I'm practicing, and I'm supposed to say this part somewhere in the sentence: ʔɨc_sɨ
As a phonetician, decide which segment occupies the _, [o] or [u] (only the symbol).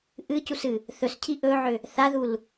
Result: u